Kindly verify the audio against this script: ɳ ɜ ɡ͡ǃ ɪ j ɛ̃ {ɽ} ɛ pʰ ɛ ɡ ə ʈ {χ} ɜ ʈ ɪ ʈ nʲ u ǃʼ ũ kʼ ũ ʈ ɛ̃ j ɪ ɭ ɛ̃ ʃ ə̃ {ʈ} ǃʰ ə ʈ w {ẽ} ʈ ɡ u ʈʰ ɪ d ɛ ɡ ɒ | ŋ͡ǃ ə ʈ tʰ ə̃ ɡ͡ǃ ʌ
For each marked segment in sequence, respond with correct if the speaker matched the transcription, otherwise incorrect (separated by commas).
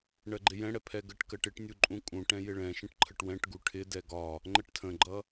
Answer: correct, incorrect, correct, incorrect